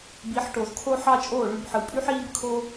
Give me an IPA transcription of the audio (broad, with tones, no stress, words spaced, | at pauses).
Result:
bi˨˦ħʈo˨zkʰo˦ ħɑ˦t͡ʃʼoː˦˨ɭy˧b ħɯ˨pʼy˦ħiː˦b kʰo˦